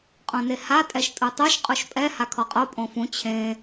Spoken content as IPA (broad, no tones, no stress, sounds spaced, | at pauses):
qʼ õ n e h a tʼ ɛ ʃ tʼ u tˤ o ʃ qʼ u ʃ pʼ ɛ h a kʰ ɔ qʼ o pʼ õ f ũ t͡ɕʰ ẽ